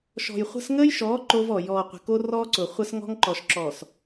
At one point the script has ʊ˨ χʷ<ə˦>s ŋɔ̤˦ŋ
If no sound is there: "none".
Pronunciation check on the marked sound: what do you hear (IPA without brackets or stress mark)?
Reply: ə˦